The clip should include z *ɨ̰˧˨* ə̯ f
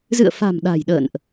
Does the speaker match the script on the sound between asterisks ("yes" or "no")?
yes